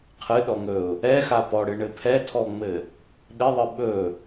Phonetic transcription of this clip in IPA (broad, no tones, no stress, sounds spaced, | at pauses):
qʰ ɨ ɗ ɔ ŋ ɵ ʊ̯ | ɛ x a p ɔ ɽ ɨ ɳ ɘ pʰ ɛ tʰ ɔ ŋ͡m ɘ | ɗ ɪ ðˤ ɨ ɓ ɵ